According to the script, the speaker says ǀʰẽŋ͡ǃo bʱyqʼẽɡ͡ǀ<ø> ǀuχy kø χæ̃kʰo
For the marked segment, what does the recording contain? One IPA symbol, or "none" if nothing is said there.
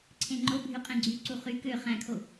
y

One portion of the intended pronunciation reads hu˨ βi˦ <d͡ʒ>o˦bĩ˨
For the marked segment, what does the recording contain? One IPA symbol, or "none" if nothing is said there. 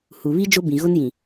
d͡ʒ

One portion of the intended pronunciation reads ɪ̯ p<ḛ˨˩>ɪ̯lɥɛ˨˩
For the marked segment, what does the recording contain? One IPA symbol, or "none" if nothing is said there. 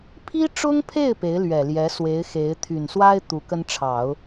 e˧˥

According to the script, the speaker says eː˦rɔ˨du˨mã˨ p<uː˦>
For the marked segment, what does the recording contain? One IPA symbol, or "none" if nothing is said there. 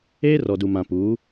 uː˨˦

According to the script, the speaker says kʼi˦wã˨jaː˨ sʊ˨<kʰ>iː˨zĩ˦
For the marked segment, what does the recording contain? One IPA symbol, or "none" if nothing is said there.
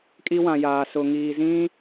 ŋ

